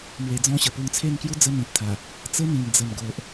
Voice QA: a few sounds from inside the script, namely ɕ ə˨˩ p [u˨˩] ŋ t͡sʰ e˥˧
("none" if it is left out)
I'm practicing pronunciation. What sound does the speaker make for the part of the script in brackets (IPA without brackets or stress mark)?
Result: u˧